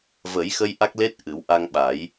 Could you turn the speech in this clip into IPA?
və˨˩˦jxə˧j ʔa˦˥k̚le˦˥t̚ ʔɨ˨˩˦wʔa˧ŋɓa˨˩˦j

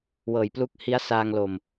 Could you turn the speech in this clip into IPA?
wɤː˨˩jplu˦˥k̚ hi˦˥a̯saː˧ŋlo˨˩m

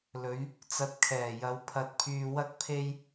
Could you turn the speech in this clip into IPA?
lɵ˨˧ɥ | t͡sɐ˧t̚kʰɛː˨˩jɐ˨˧w pʰɐ˧t̚pʰyː˧wɐ˥k̚pʰe˥j

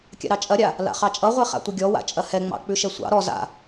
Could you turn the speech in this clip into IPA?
kʲa̰ɾɑt͡ʃʼɐɾʲa | la̰χɑt͡ʃʼʌʁʷɛ χa̰tʷəɡʲɔ wa̰t͡ʃʼɐhɛŋ͡mɑ̰ k͡pʉʃɛsʷɑ̰ ɾɔ za̰

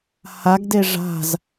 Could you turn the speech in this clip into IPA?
haɡ deʐa̤z

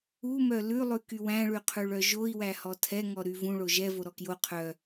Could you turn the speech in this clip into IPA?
umœ lʉlˠʉky wæ̃ɭyqʰʉɭœ ʒoi̯wæhɔ tʰɛŋɔ ɾyvũɭo ʒɛ voɾɔkjo qʰœ

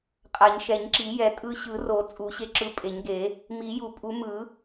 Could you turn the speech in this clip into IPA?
qʼa˨˩˦ɲʃɛ˨˩˦ɲ ǁi˨˩˦jɛ˨˩˦ tʼɯ˧ɕɯ˨˩˦ro˨˩˦ t͡sʼu˨˩˦ɕe˧ ǁɯ˧pʼe˨˩˦ɲɡe˨˩˦ | mi˨˩˦ju˨˩˦pʼu˨˩˦mɯ˨˩˦

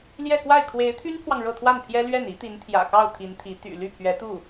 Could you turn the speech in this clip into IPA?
ljɛ˥˧kwa˥˩ɪ̯ kʰwe˧˥ɪ̯t̪ʰy˥npʰwɑ˨ŋ ɻɤ˥˧t̪ʰwa˥˩npʰjɛ˥ lɥɛ˥˩n i˧˥t̪i˧˥nt̪ʰjä̰˨˩kɑ˥˩ʊ̯ t̪ʰi˧˥nt̪ʰi˧˥ t̪y̰˨˩ ly˥˩pʰɥɛ˧˥t̪u˥˩

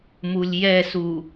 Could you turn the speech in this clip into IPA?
mulʲjɛsu

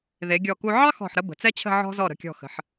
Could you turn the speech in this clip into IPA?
ðe˩˧ɡʲɔ˧˩ku˧ ʕɑ˥xɔ̤˧˩ħɾə˧ bə̤˩˧t͡sɛ˥t͡ɕʰə̤˥˧ ʕɔ̤˧zɔ˧˩ ɾə̤˧˩kʲɔ̤˧˩xə̤˩˧ħ

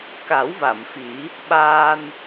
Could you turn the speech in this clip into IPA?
ka˨˩˦wva˨˩˨mfi˨˩˦ | ɓaː˧n

